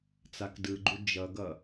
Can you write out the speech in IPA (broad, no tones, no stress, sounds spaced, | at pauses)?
t͡s a k d ɯ ɡ͡ǃ u d͡ʒ ʌ ɡ ʌ